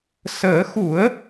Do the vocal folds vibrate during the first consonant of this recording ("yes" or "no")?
no